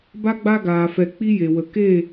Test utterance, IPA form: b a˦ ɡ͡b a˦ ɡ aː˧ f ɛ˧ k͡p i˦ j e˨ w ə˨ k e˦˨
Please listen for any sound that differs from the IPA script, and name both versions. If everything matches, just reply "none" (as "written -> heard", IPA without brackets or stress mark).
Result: none